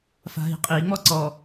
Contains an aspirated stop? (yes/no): no